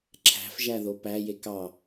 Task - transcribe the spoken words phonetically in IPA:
ǁʰ æ̤ f ʒ æ ð o p æ j e k ɑ

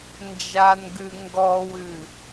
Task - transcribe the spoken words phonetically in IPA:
n d͡ʒ a n ɡ ʉ ŋ ɡ ɔ w ʉ

